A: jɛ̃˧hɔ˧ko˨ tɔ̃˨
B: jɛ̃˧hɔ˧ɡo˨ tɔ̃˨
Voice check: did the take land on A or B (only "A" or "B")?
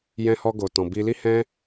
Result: B